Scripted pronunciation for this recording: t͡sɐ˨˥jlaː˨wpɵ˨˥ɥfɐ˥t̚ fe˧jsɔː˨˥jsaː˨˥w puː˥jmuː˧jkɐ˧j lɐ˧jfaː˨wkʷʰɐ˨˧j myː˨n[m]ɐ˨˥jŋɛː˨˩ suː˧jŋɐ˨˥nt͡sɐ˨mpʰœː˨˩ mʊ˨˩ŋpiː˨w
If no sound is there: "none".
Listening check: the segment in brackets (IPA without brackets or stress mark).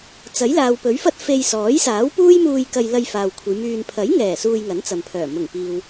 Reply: pʰ